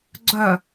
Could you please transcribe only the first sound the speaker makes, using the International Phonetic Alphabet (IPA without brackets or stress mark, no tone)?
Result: ɡ͡ǀ